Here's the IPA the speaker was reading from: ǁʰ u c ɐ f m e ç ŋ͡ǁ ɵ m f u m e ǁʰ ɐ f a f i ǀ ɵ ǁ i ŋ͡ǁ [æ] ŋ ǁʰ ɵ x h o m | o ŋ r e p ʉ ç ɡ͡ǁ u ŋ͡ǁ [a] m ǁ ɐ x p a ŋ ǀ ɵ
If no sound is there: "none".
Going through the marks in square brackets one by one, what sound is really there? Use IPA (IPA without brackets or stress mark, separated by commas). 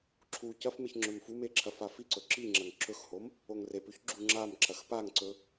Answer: ɐ, a